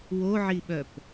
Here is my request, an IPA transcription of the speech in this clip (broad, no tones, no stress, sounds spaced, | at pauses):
w o ʕ i ɓ œ p